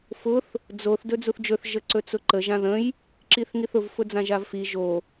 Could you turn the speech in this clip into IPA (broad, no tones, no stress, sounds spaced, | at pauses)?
f ʊ θ | d͡z o θ d ɵ d͡z u θ d͡ʒ ɵ θ ʒ ə ǀ ɵ t͡s ʊ ǃ ə ʒ ã ð ə̃ j | ǁ i θ ŋ i θ ʊ v f ʊ d͡z ã ʒ a v f i ʒ o